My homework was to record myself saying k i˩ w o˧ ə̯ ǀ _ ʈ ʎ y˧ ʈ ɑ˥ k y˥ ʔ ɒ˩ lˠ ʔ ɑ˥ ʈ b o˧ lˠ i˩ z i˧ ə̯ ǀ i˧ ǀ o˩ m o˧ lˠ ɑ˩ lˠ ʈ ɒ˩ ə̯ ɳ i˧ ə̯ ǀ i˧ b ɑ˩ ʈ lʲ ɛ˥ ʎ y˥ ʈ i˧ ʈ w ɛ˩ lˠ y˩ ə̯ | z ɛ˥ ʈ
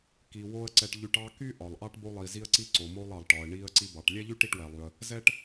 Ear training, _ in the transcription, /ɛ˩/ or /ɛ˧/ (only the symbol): ɛ˧